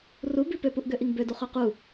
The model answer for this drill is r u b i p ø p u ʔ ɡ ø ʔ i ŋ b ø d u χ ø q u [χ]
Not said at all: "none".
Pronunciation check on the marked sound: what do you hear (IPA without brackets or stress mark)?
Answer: none